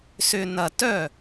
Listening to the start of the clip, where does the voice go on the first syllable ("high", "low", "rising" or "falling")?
low